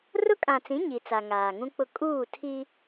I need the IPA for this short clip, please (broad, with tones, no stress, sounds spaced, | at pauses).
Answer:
r ʊ˦ kʼ ã˨ t͡s ĩ˨˦ ɲ i˨ t͡s a˨ ŋ aː˨ ŋ ũ˦ k͡p ʊ˦ kʼ uː˦˨ tʰ i˦